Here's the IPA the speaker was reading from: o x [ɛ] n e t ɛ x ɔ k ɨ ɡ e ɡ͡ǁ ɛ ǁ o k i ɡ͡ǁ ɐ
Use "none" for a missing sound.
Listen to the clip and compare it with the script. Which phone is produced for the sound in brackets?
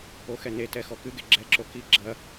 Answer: ɛ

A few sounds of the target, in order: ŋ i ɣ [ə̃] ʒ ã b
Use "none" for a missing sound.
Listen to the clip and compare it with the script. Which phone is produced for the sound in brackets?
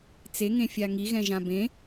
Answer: ɛ̃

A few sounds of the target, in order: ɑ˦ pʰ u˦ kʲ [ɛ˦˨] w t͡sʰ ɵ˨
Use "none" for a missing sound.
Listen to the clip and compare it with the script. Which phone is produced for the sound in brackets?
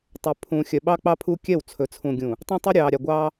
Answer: ɛ˦˨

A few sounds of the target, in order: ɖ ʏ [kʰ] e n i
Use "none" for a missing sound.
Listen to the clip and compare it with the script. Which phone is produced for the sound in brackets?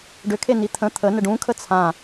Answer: kʰ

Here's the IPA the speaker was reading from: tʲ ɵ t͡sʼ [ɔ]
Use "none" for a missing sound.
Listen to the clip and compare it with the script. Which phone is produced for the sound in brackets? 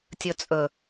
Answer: ɵ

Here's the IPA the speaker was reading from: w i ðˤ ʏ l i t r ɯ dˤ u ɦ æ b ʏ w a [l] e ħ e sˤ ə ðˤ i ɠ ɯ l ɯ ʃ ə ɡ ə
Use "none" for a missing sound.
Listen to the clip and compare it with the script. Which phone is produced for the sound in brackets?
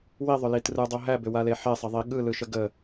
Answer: l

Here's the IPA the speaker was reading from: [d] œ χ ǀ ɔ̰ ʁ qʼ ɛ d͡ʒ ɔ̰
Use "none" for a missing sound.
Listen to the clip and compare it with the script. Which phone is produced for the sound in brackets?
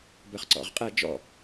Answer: b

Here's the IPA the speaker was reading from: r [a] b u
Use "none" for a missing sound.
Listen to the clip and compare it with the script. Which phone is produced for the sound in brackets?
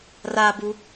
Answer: a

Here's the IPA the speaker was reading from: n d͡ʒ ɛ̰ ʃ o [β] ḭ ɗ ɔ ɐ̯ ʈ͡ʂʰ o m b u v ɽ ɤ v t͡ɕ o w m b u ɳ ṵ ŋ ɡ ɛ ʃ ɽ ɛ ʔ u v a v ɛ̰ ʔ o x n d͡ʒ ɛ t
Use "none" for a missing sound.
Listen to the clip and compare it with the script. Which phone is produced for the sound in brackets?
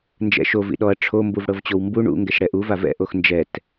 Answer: v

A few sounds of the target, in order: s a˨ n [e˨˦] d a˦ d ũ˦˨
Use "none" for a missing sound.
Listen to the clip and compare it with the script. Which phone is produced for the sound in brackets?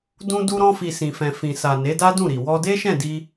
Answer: e˨˦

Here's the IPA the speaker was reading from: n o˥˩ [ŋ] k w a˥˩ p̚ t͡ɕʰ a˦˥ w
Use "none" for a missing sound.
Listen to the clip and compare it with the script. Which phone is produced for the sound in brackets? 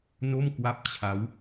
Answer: m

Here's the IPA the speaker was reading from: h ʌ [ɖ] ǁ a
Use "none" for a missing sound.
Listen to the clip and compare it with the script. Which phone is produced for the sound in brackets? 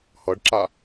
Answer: ɖ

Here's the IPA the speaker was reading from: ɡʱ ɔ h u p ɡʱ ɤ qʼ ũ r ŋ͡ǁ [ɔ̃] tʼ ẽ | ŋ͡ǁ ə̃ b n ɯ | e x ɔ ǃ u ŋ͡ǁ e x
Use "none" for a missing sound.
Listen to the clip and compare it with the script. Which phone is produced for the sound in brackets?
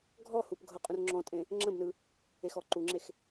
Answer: ɔ̃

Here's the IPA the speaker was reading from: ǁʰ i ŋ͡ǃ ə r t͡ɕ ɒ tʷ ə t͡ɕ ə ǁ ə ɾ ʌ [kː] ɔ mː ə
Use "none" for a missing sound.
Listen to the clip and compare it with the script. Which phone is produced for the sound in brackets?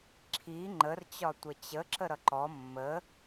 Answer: ǃ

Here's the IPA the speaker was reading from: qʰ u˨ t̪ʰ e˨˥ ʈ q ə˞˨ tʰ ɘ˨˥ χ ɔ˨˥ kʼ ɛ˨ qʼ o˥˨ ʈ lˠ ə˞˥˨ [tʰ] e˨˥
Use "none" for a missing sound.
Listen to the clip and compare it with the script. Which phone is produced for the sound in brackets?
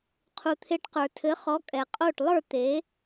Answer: t̪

